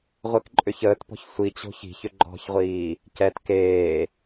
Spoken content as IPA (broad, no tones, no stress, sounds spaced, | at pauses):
ʁʷ e k ǃʼ ʏ ç əː t p ɔ̤ ç sʷ i t͡ɕ o̤ ç i̤ ç ʏ ɡ͡ǃ ɔ̤ ç ʁʷ iː | c ɛ t k eː